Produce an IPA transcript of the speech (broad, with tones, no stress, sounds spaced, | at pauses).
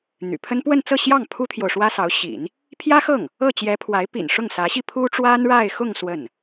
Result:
n̪ y̰˨˩ pʰ ə˥ n p w ə˥˧ n t͡s ɤ˥˧ ɕ j ɑ˥˩ ŋ pʰ u˥ t̪ʰ j o˨ ʊ̯ ʂ w ä˥ s ɑ˧˥ ʊ̯ ɕ ḭ˨˩˦ n | pʰ j ä˥ x ɤ˥˩ ŋ | ɤ˥˩ t͡ɕ j ɛ˧˥ pʰ w a˧˥ ɪ̯ p ḭ˨˩ n ʂ ʊ˥˩ ŋ s ä˧˥ ɕ i˥˩ pʰ u˥ ʈ͡ʂ w a˥ n ɻ a˥˧ ɪ̯ x ʊ˥˧ ŋ s w ə˥˩ n